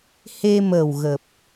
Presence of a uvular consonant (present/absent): absent